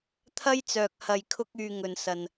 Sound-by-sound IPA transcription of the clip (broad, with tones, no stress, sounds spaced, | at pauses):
t̪ʰ ɐ˥ j t͡s œː˨ k̚ h ɐ˨ j kʰ ʊ˧ k̚ yː˨ ŋ ɵ˨ n s ɐ˨ n